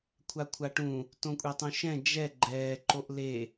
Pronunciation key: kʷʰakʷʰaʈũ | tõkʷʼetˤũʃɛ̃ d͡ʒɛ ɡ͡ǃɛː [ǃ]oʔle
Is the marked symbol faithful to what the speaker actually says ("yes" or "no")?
yes